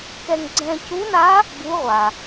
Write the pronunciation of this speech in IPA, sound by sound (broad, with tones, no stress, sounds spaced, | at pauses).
k ɛ˧ ŋ ɡ͡ǀ ɛ̃˧ c u˧˥ n a˧˥ | b u˧˥ ʁʷ a˩